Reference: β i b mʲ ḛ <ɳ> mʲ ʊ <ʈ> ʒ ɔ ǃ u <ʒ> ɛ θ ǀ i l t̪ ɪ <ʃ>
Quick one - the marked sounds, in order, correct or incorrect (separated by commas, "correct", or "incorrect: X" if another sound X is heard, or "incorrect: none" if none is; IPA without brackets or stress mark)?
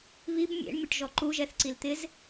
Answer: correct, correct, correct, incorrect: z